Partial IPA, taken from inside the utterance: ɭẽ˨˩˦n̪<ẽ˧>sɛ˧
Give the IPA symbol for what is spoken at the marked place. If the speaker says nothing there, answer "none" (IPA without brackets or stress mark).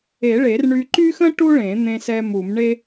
ẽ˧